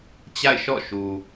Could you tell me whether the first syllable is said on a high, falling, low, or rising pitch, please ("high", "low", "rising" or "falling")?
falling